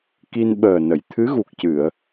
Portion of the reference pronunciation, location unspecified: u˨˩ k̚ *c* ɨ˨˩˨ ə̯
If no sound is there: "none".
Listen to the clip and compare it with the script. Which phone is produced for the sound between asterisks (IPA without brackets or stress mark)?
c